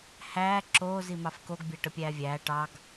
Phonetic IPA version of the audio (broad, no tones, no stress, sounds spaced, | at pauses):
h æː ǁ oː z i m ɑ f k o ɡ bʲ æ ʈ ə pʲ æː vʲ æː ʈ ɑ ɡ